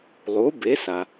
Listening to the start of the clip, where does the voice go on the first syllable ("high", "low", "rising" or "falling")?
rising